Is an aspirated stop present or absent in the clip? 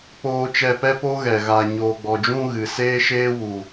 absent